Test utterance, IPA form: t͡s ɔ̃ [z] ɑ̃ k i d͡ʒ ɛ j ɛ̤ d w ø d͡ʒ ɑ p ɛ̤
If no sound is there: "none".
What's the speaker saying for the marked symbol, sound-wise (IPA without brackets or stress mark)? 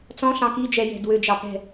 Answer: ɬ